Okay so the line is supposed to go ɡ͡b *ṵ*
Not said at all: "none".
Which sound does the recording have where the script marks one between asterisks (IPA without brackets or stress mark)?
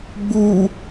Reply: u